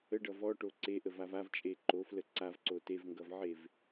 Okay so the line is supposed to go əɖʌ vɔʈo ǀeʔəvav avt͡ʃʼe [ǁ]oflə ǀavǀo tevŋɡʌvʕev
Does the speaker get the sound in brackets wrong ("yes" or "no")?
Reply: yes